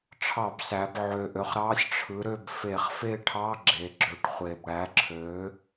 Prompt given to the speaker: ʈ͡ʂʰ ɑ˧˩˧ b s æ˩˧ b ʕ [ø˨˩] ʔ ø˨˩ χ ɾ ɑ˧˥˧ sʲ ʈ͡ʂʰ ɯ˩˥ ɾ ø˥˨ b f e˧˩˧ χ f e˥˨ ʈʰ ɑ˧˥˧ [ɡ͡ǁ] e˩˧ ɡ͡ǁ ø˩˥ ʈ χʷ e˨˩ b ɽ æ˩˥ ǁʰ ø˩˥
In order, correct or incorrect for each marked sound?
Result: correct, correct

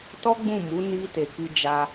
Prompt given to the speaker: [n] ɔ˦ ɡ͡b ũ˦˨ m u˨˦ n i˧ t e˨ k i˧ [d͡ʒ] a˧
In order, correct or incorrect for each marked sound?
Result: incorrect: t, correct

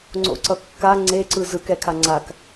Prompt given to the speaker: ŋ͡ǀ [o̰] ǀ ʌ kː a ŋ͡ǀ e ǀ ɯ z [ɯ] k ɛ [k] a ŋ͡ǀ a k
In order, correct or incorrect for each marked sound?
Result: correct, correct, incorrect: kʰ

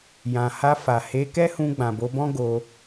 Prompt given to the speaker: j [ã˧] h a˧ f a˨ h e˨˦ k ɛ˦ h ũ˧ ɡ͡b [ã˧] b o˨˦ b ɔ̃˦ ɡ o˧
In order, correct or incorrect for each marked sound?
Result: incorrect: ã˨, incorrect: ã˨

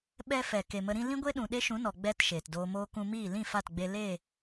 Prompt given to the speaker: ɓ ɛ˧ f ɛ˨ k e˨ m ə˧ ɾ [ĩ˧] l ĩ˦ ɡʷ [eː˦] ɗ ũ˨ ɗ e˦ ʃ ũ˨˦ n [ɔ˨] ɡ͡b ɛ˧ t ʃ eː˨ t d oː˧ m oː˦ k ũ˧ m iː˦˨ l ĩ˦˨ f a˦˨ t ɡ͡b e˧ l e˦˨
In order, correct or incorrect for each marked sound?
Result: incorrect: ĩ˦, incorrect: e˦, correct

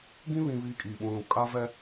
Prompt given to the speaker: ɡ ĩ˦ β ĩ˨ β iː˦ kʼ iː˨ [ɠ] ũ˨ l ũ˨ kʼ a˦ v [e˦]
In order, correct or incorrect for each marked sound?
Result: incorrect: ɓ, incorrect: ɛ˦

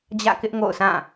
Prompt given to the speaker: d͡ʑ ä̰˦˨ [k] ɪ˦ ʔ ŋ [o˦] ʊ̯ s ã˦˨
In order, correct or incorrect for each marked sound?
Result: correct, incorrect: o̰˦˨

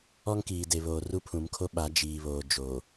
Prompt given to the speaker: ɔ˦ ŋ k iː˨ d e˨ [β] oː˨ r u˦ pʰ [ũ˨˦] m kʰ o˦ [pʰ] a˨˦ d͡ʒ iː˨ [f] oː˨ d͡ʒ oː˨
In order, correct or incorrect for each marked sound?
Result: correct, correct, incorrect: ɓ, incorrect: β

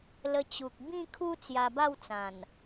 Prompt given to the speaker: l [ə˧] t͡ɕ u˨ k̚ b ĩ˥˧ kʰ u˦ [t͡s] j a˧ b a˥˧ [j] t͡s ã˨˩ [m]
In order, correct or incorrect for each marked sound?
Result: correct, correct, incorrect: w, incorrect: n

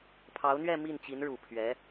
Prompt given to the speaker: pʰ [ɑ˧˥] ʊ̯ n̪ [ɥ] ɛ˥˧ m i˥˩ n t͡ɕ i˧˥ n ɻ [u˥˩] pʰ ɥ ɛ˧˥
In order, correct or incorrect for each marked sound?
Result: correct, correct, incorrect: u˨˩

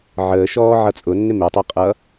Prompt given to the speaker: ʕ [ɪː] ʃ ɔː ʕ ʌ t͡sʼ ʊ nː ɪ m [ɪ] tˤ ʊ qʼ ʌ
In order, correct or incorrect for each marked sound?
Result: incorrect: əː, correct

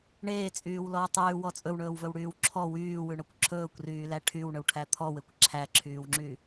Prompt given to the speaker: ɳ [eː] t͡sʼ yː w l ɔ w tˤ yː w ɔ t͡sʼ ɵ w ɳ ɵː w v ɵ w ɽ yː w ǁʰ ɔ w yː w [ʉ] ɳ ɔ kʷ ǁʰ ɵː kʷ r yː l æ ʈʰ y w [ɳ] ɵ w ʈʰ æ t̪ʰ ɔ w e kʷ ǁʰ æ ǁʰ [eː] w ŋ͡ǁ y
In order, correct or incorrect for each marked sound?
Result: correct, correct, correct, incorrect: yː

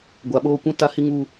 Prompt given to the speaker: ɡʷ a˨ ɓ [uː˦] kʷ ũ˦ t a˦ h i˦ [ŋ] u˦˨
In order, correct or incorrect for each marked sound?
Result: incorrect: oː˦, correct

